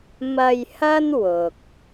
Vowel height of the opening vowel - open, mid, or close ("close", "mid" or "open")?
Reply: open